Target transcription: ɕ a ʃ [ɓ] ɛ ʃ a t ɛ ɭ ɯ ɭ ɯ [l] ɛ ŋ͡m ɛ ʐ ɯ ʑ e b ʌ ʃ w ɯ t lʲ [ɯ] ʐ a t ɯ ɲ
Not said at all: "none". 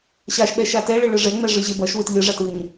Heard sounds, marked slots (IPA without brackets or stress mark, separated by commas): ɓ, ʐ, ɯ